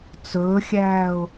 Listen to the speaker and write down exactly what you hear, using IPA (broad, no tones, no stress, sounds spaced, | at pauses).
t͡s ɵː xʲ æː ʊ̯